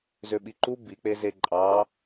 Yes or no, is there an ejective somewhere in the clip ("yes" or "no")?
yes